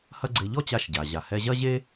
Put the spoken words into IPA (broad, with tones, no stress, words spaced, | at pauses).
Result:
hɐ˥ɡ͡ǀe˧ ʎɔ˥t͡ɕa˧ʃɟa˩ ʑa˩ hɛ˧ʑɐ˥ʑe˥